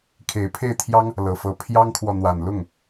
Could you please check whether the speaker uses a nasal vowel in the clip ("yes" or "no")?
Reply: no